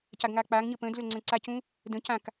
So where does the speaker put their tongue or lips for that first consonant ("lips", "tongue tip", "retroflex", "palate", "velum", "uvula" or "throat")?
palate